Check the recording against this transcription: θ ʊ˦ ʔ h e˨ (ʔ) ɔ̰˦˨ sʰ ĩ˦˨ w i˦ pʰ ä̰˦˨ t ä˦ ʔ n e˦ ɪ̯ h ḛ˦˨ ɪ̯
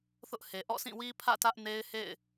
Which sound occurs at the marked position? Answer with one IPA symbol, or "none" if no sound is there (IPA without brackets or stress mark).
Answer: ʔ